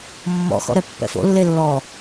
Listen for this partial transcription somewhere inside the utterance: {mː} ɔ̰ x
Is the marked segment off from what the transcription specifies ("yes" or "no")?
no